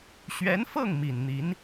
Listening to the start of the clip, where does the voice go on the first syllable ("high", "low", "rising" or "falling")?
rising